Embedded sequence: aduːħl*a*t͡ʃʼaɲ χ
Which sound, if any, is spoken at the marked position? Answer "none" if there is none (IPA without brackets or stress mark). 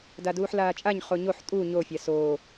aː